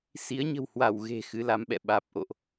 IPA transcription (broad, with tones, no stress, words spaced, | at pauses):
si˨˦ə̯ɲə̤˨˩whwa˧˩w ɣe̤˨˩ xɨ˨˦la˨˦mɓɛ̰˧˨ ɓaː˨˩p̚ʔo̰˧˨ʔ